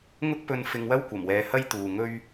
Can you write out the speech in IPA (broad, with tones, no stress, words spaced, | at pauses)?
ŋʊ˥k̚pɵ˧n fɪ˧ŋwɐ˥wkʷɐ˨˩mwɛː˨˧ hɐ˥jt̪uː˨ŋɵ˥ɥ